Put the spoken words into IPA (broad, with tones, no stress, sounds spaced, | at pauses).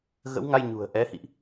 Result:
ɣ ə̰˧˥ w ŋ a˧ j ɲ ṳ˨˩ ə̯ ʔ ɛ˨˦ h ḭ˧˨ ʔ